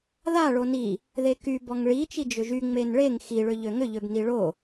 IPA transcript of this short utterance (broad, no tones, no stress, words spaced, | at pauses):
ðaɭo ni | ðeky bɔŋɭi t͡ʃid͡ʒʏʒy ŋ͡menɭeŋ xiɭʏ ʎøŋʏʎøb niɭo